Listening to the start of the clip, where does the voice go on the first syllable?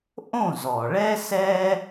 falling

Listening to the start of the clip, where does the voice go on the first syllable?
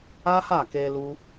high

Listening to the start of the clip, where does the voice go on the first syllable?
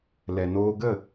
low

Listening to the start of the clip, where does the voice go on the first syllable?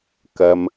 low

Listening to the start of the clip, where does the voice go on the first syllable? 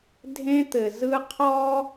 high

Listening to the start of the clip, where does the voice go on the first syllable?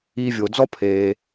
low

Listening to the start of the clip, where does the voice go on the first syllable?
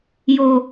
low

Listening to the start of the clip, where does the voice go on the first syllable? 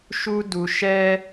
high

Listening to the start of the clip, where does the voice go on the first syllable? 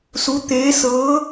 rising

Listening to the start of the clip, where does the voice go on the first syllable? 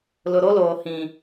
low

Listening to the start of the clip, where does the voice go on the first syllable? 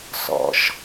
low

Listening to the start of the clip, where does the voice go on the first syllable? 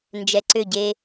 low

